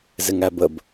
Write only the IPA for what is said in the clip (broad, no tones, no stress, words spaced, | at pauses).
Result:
zɪŋæbəb